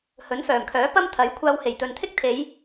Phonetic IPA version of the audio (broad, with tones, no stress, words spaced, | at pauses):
hɵ˨˥nfœː˨˩mkʰœː˨˥pɐ˥m t̪ʰɐ˨˥jkʷʰaː˧w he˨˩jt̪ɵ˨nt̪ʰɪ˥k̚t̪ʰe˨˧j